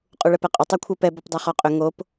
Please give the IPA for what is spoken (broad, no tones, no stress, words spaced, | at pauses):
qʼuɭɛpɛqʼʏ tˤakʷʰə˞pɛ bɔpdˤɛχɔqʼʏ ŋop